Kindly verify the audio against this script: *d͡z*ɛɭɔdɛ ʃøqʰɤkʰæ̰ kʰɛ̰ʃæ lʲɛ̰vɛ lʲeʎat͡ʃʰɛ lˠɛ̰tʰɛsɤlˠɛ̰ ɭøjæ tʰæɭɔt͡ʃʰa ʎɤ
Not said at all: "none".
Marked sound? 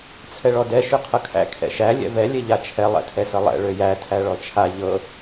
t͡sʰ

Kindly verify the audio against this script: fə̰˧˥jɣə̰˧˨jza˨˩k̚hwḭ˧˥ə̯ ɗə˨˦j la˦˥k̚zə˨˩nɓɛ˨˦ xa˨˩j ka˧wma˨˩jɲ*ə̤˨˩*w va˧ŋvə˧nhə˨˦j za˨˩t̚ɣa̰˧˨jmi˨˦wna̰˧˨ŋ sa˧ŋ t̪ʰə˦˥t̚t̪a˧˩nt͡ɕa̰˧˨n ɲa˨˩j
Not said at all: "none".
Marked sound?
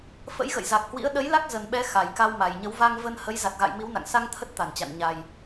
ə˨˦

